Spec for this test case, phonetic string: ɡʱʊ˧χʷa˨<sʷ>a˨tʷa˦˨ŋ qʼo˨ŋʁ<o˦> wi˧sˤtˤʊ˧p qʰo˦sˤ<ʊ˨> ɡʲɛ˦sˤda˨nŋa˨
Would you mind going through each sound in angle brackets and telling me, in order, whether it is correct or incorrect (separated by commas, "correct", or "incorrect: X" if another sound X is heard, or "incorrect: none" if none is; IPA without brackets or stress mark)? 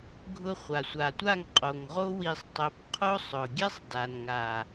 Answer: correct, correct, correct